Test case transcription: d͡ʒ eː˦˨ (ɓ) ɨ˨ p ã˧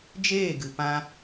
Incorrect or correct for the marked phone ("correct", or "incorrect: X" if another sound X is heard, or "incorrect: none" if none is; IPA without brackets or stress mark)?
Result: incorrect: ɡ